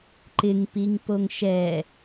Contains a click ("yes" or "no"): yes